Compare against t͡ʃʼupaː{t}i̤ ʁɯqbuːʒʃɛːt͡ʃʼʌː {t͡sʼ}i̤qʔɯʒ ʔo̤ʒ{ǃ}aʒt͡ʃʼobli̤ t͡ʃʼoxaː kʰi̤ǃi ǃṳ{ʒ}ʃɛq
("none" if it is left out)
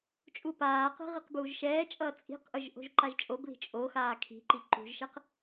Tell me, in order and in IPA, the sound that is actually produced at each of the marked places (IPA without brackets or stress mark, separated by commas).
q, t͡sʼ, ǃ, ʒ